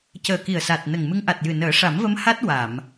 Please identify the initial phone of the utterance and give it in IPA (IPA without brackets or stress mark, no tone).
c